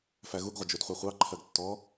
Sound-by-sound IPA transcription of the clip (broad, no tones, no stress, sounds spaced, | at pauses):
f æ ɣ u ɡ ʁʷ ə d͡ʒ u d χʷ æ χʷ ɑ ǃʰ ɜ ɡ tː ɔ